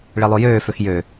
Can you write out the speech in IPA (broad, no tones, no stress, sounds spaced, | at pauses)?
ɭ e lˠ o j øː f ø x j ø